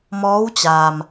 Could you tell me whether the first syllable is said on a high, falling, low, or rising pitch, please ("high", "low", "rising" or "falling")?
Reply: rising